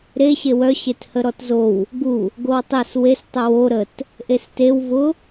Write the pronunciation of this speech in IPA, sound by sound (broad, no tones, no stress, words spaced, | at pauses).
ɾe ɕewœ ɕethəɾɔtzow | ɡu | ɡowtˤes wes tˤʊwo ɾət | ʔestew vʊ